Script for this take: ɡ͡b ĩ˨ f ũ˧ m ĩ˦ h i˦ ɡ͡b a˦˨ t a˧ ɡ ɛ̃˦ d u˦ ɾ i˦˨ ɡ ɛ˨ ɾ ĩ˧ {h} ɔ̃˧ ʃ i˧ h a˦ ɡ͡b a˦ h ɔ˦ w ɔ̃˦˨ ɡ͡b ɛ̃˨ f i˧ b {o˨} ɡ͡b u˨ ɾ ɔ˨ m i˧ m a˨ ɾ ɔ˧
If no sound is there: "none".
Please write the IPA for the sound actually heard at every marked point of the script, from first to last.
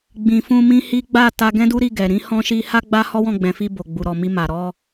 h, o˨

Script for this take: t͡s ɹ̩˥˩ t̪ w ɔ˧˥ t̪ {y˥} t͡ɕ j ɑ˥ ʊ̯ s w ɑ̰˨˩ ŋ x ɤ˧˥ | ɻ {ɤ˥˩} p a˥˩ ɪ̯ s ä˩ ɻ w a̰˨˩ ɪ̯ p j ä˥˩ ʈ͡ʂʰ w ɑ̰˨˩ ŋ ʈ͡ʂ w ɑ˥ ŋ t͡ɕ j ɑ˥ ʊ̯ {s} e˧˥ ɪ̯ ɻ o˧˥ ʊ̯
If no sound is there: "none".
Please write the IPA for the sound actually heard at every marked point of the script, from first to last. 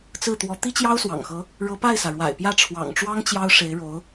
i˥, ɤ˧˥, ʂ

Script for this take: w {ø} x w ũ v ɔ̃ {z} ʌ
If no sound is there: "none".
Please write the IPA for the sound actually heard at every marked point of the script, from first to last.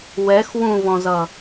ɛ, z

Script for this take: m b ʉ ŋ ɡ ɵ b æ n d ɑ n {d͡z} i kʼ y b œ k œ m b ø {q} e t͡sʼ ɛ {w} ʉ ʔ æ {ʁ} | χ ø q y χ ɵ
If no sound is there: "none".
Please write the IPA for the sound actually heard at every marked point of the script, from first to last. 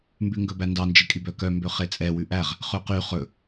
d͡ʒ, χ, w, ʁ

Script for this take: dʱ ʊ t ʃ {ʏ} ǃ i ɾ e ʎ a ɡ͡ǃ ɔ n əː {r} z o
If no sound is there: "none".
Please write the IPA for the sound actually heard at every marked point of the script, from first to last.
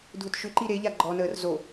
ʏ, r

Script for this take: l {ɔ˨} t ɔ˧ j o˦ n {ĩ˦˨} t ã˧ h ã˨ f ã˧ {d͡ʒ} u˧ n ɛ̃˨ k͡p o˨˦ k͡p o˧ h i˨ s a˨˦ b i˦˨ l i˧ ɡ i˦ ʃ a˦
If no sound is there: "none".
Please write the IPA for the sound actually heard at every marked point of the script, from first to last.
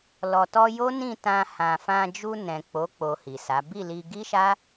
ɔ˨, ĩ˦˨, d͡ʒ

